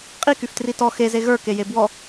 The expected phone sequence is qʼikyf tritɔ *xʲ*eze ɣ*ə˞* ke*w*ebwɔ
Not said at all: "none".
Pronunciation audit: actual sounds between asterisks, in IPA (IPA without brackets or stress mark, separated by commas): x, ə˞, j